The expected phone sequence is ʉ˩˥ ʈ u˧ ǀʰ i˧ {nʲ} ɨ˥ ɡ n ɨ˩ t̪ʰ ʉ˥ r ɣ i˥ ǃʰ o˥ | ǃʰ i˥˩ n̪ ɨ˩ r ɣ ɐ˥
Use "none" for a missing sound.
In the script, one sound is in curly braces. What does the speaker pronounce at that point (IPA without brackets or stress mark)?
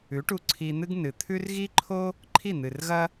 n̪